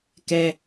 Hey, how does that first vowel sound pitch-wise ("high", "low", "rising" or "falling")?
high